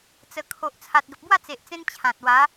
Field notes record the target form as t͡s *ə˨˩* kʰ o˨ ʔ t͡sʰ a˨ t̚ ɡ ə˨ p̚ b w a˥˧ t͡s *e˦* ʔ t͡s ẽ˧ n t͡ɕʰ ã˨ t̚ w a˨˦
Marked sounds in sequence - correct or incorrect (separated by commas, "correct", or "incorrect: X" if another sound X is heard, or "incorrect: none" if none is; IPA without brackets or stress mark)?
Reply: correct, incorrect: e˨